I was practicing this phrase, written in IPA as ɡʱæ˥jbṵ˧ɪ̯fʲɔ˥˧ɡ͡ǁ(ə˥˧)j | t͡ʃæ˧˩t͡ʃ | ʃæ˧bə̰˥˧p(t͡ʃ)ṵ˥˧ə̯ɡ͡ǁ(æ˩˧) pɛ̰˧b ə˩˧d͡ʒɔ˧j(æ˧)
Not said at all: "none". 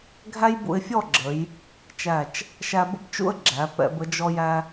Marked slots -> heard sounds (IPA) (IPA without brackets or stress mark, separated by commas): ə˩˧, t͡ʃ, æ˩˧, æ˧